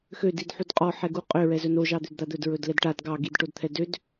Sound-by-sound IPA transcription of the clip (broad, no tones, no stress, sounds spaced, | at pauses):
x ø d i d ħ u d qʼ ɔ ħ ɛ ɡ u qʼ ø ɹ ɛ z ɵ n o ʒ ɑ d̪ ø d d̪ a d̪ ɵ d ɹ ɵ d l ɛ d ʈ a d ɡ ɑ ɡ i d ʈ o d t̪ʰ ɛ d ø d